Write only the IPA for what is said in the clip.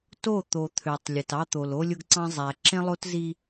t o˦˨ t̪ o˨ t̪ʰ ø˨ tˤ lʲ e˨ t ɑ˦ t̪ o˨ l o˦ lʲ ʊ˦ ɡ ǀ ɑ̃˦ zˤ æ˨ ǁ ẽ˦ lˠ o˦ t z i˦

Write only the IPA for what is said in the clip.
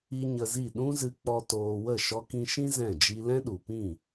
i˦ ɲ ə˧ z i˦˨ ɗ ũ˦ z ɨ˧ k͡p ɔ˧ t oː˧ w ə˦˨ ʃ ɔ˧ k ĩ˧ ʃ ĩ˦ z ɛ̃˦˨ d͡ʒ i˧ l ɛ̃˦ ɗ u˨ p ĩ˦˨

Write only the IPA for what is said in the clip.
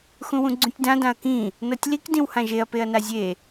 x ũ w ũ ɡ͡ǀ ũ tʲ d ã d ã ɐ̯ k ĩ | n ɤ tʲ l i k d ĩ w h ã ʒ e ɐ̯ p e ɐ̯ n a zʲ e

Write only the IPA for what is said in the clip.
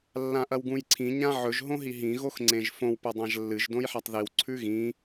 lː ã ʔ ɐ w ɡ ũ j ǀʰ ĩ ɲ ã ʕ ɵ ʒ ɦ õ ɦ i ɦ ĩ ɣ o x ŋ͡ǀ ẽ ʒ f õ w p o dˤ ã ʒ lː ɨ ʒ d õ j ħ a tˤ ð i w ǀʰ ʉ ɣ ĩ

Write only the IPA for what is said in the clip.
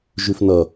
ʒ ʉ f n ʌ

